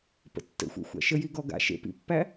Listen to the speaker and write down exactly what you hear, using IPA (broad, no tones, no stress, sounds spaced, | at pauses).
p ə̰ tː ə̰ xʷ ḛ xʷ æ̰ ʃ ə j i ɡ ɔ ɡ a̰ ʃ ḛ p ḭ pː æ